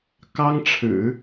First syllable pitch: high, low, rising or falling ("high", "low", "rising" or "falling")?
high